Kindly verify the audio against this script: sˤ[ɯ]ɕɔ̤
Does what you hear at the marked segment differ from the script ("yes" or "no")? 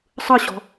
no